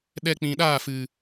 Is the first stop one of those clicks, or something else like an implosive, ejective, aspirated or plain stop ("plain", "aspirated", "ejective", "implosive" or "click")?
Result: implosive